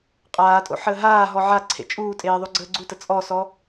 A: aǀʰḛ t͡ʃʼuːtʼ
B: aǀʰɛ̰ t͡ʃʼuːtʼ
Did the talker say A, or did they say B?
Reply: A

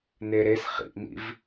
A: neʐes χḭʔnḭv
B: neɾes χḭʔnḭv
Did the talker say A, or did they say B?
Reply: B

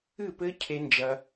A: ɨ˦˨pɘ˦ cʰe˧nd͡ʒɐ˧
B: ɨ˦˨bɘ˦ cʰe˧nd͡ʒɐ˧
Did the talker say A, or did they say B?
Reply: A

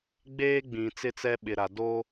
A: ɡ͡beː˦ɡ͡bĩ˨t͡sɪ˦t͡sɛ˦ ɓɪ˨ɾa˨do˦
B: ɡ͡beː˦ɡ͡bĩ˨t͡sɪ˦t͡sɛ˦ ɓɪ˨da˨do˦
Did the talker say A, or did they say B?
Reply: A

